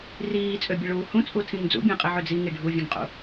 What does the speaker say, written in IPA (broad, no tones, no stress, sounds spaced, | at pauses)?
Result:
r iː t͡sʼ ø bʲ e ɭ uː h ũ t͡sʼ u tʰ ĩ ŋ d͡z ṵ bʲ ẽ qʼ i ʕ ø d͡z i ŋ i ɖʱ u vʲ ẽ ŋ qʼ ṵ